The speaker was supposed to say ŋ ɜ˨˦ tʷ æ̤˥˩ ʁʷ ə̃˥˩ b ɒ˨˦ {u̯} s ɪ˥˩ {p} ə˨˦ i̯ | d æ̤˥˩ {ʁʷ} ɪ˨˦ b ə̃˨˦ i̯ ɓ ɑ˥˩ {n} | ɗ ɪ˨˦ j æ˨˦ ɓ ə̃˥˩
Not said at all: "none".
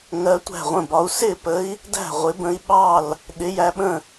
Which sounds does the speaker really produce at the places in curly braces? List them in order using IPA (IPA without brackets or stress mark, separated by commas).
u̯, p, ʁʷ, l